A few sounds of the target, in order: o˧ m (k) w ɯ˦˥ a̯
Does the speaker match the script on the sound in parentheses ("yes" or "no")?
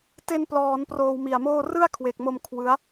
no